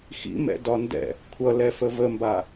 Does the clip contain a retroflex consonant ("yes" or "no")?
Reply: no